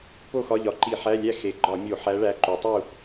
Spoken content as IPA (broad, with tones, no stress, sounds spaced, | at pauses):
p o˥˨ x ɒ˧˥˧ ʎ ɒ˩˧ ǃ i˧˩˧ ħ æ˧˥˧ lʲ æ˥˨ x e˩˧ ɡ͡ǃ ɒ˧˩˧ mʲ o˧˩˧ ħ æ˧˥ ɭ æ˧˥ ǃ u˩˧ tˤ u˥˨